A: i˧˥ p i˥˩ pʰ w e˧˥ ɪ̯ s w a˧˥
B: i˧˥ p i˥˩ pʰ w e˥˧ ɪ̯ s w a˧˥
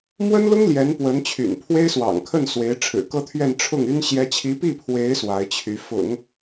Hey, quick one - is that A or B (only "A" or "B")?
A